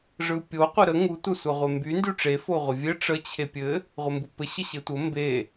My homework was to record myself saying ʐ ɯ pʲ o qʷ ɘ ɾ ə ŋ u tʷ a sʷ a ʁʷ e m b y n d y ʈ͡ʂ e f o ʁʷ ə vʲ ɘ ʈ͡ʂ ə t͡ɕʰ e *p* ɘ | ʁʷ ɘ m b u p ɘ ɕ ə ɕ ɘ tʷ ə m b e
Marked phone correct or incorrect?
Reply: incorrect